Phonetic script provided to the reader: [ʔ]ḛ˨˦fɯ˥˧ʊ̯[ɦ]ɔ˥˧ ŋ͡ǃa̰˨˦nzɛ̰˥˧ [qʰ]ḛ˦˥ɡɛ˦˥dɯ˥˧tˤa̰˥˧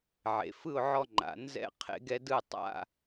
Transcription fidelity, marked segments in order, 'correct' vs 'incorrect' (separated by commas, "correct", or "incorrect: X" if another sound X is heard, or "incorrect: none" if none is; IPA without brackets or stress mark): incorrect: ʕ, incorrect: ʕ, correct